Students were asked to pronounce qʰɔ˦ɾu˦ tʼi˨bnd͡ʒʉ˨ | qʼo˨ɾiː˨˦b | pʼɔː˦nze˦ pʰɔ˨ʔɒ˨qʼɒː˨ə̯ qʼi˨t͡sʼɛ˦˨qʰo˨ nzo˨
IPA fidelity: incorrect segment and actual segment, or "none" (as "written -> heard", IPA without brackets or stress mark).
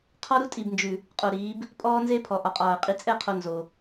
none